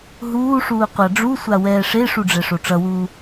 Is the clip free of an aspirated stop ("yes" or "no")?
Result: yes